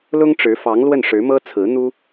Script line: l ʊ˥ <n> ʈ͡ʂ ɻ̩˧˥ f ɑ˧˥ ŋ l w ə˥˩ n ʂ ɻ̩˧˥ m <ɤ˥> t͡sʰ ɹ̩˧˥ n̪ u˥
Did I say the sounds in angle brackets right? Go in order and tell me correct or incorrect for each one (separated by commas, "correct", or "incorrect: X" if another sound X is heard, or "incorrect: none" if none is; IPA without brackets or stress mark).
incorrect: ŋ, correct